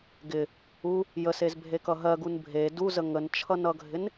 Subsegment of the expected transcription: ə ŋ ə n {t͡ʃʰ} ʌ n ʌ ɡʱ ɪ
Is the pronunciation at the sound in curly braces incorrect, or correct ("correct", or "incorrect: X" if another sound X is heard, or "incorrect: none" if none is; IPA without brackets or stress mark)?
correct